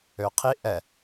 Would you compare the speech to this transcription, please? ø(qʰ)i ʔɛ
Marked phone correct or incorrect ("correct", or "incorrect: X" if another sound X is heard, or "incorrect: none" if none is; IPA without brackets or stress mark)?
correct